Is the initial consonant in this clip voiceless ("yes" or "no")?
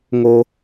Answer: no